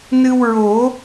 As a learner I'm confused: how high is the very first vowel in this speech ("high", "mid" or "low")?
high